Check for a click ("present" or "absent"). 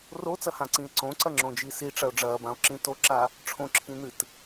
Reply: present